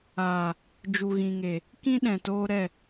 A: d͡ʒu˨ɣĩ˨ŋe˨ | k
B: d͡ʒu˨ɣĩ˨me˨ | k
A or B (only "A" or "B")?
A